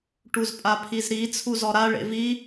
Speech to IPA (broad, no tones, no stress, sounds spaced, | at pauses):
ʈ u z pʼ a pʰ i z ɾ i t͡sʰ u z ɔ ɾ a ɭ ḛ v i